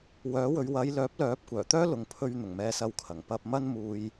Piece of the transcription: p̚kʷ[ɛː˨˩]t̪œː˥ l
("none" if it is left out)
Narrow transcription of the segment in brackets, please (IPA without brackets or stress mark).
œː˨˩